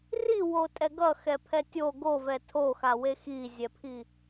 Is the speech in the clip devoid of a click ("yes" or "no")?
yes